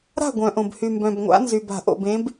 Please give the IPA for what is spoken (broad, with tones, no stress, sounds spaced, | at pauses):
ɾ a̤˥˨ ɡʷ œ̃˩ ʔ õ˩ b h y˩ m b œ̃˩ b ŋʷ a̰˨˦ n z y˩ b a̤˧˩˧ ʔ o̰˩ b ẽ˨˦ b